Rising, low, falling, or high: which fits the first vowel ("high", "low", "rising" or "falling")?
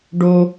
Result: high